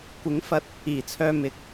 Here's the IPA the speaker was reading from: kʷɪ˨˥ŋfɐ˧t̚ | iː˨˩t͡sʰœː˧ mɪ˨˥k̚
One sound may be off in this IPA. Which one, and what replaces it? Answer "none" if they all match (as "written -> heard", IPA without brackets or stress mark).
none